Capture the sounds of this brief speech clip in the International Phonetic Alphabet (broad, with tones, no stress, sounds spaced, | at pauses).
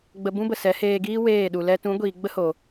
ɡ͡b ə˧ b ũ˦ b ə˨ s ɛ˨˦ h eː˧ ɡ iː˦ w eː˦˨ ɗ u˨ l ɛ˦ t ũ˨˦ ɡʷ iː˨ ɡ͡b ə˦ h o˨